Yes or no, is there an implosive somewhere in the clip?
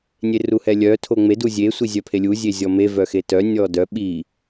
yes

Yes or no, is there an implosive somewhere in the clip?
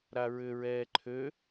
no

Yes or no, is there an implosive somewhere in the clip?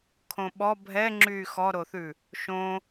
yes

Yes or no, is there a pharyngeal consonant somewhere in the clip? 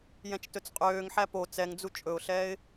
yes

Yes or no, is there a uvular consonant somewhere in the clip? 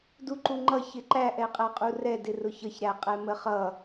yes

